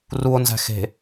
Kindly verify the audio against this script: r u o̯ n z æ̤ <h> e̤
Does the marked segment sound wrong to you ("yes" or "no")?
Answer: yes